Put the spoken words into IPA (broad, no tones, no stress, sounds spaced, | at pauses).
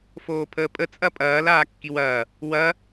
f oː pʰ əː pʼ ə t͡sʼ ɐ pʼ ɐː l aː kː i w ɐː | w ɐ